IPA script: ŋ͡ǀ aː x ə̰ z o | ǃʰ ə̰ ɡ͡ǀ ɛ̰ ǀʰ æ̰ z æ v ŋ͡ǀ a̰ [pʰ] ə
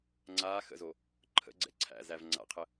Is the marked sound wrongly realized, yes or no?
yes